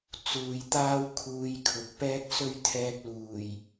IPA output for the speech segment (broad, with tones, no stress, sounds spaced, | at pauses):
t͡s uː˨ j t̪ aː˥ w kʰ uː˧ j kʰ ʊ˨ k̚ p ɛː˥ k̚ s ɵ˥ ɥ t̪ʰ ɛː˧ k̚ l uː˨˩ j